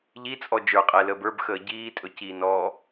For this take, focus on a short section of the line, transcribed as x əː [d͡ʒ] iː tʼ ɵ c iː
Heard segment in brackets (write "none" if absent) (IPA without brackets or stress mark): ɟ